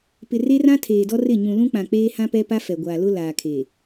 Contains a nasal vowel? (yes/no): yes